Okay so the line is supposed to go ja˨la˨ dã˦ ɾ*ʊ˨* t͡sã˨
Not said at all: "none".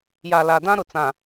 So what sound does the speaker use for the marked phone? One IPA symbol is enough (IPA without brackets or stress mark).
ʊ˨